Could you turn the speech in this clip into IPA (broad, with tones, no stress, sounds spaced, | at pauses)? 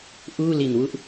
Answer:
ʔ uː˥˩ l i˨˩ n w u˥˩ ʔ